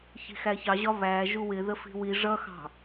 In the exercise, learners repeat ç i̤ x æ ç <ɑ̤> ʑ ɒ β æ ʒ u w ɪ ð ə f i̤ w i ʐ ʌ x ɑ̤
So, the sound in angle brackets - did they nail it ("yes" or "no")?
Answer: no